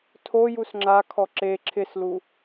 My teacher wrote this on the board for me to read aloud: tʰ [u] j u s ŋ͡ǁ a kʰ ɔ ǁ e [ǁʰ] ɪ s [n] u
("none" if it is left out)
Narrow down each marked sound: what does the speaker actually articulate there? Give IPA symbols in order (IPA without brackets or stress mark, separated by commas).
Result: o, ǁʰ, l